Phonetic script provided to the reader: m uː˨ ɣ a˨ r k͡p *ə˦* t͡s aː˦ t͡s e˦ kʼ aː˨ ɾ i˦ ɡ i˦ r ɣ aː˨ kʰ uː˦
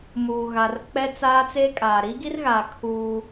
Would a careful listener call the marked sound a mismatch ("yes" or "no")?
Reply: yes